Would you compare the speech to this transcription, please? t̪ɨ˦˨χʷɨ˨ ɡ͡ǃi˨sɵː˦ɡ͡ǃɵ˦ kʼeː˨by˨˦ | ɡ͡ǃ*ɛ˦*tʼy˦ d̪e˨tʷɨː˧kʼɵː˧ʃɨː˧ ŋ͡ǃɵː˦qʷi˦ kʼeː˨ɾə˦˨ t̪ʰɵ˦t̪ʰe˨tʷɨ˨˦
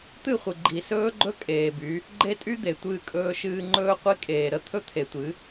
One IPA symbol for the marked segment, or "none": e˦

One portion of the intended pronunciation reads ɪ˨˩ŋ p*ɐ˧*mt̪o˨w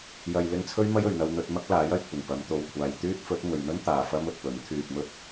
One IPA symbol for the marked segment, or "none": ɐ˨˧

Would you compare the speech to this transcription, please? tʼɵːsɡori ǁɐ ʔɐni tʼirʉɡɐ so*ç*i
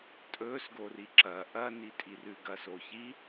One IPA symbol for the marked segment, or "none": ç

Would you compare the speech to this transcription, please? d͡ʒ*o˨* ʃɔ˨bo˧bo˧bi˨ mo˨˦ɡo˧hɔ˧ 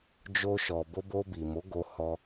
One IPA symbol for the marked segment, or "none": o˧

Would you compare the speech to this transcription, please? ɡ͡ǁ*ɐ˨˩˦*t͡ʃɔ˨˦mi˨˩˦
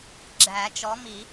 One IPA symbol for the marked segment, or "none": æ˨˩˦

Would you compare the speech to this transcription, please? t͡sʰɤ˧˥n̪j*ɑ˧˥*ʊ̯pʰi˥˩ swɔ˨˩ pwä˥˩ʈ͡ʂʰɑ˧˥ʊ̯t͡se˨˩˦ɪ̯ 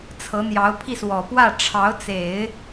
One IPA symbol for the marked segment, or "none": ɑ˧˥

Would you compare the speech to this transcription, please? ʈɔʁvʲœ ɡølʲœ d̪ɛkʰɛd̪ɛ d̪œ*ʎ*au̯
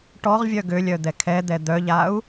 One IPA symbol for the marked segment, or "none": ʎ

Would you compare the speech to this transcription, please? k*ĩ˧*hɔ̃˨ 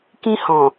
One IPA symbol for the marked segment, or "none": ĩ˧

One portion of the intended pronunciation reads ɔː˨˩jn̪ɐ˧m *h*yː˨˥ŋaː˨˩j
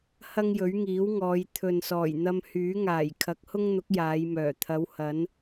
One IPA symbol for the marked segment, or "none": h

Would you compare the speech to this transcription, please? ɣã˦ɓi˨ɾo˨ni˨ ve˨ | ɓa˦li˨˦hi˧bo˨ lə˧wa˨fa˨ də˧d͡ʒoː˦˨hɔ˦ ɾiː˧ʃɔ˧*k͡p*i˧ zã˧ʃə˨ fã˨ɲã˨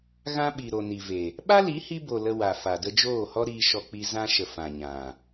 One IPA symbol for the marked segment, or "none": k͡p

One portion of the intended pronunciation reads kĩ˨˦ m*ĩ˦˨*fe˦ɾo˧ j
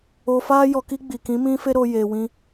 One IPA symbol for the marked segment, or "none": ĩ˦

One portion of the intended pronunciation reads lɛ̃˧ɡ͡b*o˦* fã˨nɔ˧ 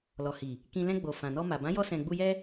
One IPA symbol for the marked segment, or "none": o˨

